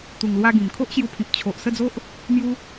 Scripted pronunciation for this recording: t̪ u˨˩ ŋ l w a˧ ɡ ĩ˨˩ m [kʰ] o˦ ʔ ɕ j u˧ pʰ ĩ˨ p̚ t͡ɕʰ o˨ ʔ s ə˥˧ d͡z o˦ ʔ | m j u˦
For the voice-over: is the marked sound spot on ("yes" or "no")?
yes